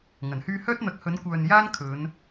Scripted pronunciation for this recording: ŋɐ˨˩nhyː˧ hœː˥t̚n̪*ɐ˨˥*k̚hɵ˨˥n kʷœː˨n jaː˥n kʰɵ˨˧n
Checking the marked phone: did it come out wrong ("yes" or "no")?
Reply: no